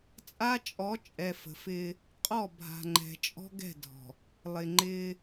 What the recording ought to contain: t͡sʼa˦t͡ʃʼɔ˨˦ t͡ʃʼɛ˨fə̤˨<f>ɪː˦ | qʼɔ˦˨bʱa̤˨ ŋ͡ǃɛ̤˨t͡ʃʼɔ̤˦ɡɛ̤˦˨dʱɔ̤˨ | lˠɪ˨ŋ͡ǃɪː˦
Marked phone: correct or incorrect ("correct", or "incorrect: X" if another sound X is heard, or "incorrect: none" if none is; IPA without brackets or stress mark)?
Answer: correct